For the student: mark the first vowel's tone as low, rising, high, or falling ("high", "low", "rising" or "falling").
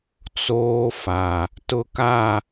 high